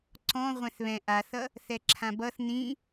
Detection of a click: present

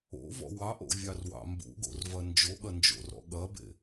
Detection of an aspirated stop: absent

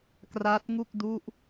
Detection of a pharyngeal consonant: absent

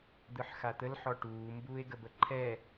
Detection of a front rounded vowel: absent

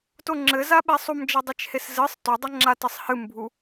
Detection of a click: present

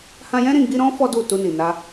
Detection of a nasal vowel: present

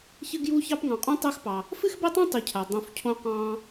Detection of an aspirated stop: present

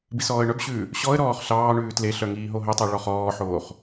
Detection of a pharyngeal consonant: present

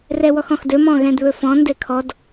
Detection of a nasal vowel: present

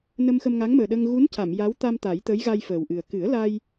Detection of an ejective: absent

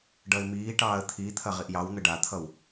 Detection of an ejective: absent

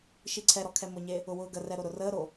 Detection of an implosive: absent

